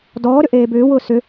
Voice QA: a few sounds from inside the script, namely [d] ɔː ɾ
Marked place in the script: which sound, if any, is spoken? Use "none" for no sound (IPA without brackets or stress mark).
d